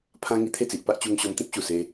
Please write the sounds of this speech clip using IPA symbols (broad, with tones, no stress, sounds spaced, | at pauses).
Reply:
pʰ ã˦ ŋ i˧ t̪ʰ e˥˧ t͡s i˨ ʔ p a˦ ʔ t͡ɕ u˧ ŋ ɕ ɔ˧ m t̪ ĩ˦ p̚ ɕ u˨˩ s e˧